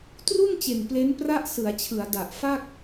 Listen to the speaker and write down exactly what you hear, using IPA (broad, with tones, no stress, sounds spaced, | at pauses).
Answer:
t r u˥˩ n t͡ɕ e˨˩ n p l e˦˥ n p r a˥˩ ʔ s ɯ˩˦ a̯ t͡ɕʰ ɯ˩˦ a̯ d a˨˩ ʔ f a˥˩ k̚